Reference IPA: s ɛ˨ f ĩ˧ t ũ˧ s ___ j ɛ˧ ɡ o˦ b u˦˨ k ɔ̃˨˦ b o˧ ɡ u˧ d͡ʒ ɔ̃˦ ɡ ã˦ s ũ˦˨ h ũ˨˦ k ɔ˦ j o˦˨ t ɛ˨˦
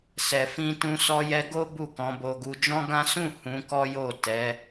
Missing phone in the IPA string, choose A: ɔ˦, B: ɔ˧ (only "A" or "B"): B